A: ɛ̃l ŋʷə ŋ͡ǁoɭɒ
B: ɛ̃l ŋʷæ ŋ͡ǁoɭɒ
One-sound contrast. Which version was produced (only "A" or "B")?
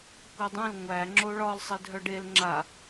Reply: B